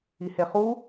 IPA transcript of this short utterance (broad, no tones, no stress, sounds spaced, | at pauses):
i h e χ u